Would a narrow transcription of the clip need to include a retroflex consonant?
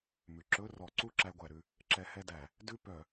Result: no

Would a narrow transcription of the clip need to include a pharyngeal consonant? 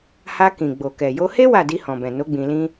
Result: no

